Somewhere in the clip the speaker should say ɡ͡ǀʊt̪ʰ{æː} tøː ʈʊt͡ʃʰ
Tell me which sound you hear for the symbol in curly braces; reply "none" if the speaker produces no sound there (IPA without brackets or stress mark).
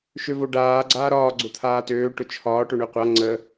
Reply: aː